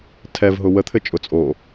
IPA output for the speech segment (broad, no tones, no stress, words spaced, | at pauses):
tʰɛvɦʊ wət̪ʰɘ t͡ʃʼʊ t͡sʼo